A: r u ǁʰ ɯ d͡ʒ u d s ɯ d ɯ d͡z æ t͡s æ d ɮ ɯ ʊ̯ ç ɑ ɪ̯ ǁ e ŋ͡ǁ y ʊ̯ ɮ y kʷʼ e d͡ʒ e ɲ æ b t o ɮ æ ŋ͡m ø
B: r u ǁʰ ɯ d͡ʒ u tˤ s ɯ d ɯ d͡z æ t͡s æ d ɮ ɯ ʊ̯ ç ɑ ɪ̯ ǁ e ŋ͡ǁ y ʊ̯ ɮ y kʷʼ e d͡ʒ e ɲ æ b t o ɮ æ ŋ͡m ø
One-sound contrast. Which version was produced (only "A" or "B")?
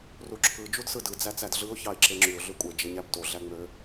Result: A